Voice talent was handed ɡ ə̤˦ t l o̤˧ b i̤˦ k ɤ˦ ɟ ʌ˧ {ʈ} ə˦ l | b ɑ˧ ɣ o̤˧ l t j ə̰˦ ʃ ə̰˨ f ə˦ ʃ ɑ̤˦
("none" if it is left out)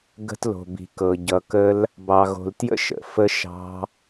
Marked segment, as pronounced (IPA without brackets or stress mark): k